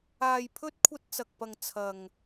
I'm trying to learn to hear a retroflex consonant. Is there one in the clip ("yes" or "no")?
no